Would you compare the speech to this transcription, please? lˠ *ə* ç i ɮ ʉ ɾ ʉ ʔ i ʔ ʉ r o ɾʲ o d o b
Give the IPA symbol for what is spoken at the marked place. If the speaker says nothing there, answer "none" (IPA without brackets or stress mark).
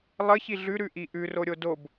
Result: ə